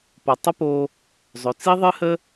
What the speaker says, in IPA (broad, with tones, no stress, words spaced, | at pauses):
po˩tˤə˥po˧ | zˤø˩t͡si˥ ðˤɨ˥hə˥